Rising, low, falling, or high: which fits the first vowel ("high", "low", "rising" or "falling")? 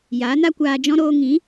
rising